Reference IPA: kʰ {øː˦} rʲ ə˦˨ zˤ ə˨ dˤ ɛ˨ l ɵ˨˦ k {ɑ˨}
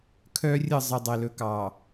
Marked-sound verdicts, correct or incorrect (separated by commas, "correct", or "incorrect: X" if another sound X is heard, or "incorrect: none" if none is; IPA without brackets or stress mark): incorrect: œː˦, correct